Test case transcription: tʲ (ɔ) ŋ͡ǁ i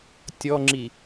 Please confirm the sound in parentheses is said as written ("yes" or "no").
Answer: yes